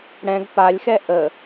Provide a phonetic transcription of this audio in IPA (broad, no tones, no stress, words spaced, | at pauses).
ɽɛ̃ɡ palʲxɛ ʔə